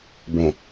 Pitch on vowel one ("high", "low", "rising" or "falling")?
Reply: low